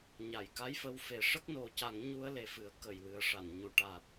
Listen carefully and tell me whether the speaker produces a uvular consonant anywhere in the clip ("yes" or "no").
no